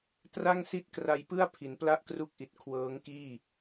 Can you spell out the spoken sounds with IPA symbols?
tra˥˩ŋ si˥˩t̚kra˧jpɯ˥˩a̯ pʰi˩˦npla˥˩ʔkru˦˥k̚ʔi˨˩t̚ kʰwɤː˦˥ŋkiː˥˩

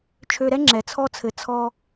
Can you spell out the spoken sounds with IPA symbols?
t͡ʃʰø˧ɾɛ˦ ŋ͡ǁɛ˨˦t͡sʰɔ˦t͡sʰɘ˨˦ t͡sʰɔ˧

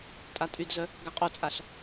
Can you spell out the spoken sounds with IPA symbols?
tʼatʼydzœ | ɡaqʼot͡sʼaɬ

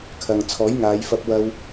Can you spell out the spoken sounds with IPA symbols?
kʰɐ˨ŋ t͡sʰɔː˨˥jŋaː˨˧jfɐ˧p̚ wɐ˧w

